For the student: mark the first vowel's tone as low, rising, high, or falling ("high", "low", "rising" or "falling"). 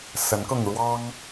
rising